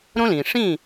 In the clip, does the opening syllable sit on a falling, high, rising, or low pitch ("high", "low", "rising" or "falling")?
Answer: high